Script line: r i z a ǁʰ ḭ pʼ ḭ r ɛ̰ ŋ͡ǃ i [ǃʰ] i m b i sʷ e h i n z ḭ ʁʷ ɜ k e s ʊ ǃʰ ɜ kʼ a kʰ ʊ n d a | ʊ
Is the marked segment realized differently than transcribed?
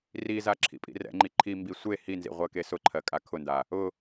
no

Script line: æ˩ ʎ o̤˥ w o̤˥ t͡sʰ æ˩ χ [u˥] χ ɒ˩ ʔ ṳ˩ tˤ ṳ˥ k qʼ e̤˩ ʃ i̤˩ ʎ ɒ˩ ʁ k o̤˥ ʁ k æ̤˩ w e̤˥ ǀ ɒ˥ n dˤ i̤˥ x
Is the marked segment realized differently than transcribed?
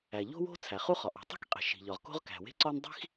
no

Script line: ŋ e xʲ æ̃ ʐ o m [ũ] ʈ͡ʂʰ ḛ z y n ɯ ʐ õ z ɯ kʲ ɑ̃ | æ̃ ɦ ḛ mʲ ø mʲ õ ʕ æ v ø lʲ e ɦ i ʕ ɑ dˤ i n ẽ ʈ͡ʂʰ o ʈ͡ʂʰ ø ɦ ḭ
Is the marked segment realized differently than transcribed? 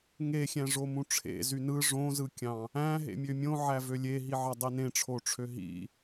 no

